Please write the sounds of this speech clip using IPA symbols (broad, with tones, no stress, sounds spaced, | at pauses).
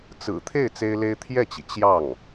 t͡s ɹ̩˨˩ t̪ʰ e˥˩ ɪ̯ t͡s e˥ ɪ̯ l e˥ ɪ̯ t̪ʰ j ɛ˥˩ t͡ɕ i˩ t͡ɕ j ɑ˥˩ ŋ